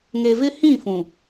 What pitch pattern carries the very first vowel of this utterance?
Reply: low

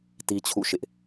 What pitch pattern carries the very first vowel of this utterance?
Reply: high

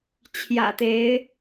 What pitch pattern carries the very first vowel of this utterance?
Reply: low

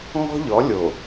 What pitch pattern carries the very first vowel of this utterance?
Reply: high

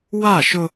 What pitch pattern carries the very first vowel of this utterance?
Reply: falling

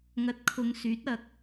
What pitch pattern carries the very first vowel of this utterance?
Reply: rising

